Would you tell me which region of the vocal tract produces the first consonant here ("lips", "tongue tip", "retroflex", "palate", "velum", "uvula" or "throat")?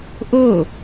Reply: throat